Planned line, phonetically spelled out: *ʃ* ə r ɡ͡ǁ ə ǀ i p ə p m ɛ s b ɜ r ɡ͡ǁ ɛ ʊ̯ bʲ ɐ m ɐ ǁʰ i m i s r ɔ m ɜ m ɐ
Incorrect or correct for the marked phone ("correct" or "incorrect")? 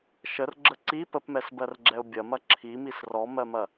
correct